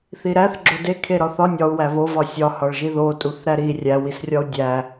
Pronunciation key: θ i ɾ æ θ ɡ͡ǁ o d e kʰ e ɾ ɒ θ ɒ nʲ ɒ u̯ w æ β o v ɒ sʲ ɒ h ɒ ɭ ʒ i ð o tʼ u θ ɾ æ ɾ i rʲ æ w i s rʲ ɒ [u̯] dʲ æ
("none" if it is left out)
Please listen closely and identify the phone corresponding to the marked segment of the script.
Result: u̯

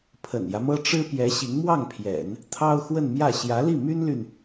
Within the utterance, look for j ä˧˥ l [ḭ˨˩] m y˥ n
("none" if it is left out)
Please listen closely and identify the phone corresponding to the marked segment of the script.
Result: i˥˩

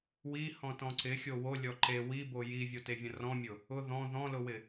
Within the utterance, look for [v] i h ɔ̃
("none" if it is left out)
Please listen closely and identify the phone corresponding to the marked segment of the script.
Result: w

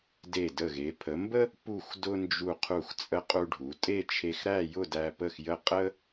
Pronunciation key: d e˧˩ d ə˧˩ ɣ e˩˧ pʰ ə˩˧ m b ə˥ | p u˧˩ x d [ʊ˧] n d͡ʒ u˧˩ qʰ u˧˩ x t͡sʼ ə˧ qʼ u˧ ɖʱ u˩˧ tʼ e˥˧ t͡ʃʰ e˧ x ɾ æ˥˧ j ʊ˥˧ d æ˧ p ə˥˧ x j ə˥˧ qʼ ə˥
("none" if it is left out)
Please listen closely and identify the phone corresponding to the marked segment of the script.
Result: ʊ˧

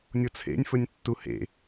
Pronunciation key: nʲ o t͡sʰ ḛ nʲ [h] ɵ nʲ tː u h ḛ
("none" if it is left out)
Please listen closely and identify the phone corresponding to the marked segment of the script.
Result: f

